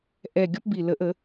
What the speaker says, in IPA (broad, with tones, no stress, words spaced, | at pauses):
ʔɛ˨˩ɡʲɔ˧p bi˨˩ lə˨˩˦ʔə˨˩˦